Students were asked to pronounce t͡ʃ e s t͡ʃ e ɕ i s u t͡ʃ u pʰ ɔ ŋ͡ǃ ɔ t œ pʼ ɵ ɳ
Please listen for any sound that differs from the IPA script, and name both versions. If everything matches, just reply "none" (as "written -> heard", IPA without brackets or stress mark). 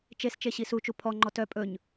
ɳ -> ɲ